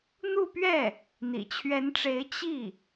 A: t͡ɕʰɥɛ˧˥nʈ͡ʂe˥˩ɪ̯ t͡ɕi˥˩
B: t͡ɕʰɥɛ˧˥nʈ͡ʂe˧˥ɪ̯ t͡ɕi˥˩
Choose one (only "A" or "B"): B